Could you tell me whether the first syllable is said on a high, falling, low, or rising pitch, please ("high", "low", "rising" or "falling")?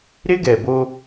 high